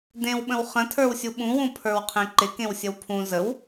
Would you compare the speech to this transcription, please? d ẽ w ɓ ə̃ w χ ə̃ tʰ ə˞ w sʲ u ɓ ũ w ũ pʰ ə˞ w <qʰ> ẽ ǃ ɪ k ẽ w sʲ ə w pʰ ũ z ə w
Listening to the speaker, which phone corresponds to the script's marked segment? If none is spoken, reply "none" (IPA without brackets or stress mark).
qʰ